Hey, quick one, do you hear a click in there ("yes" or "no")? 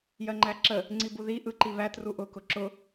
yes